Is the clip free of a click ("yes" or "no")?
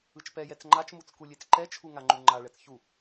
no